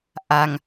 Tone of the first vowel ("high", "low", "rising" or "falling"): low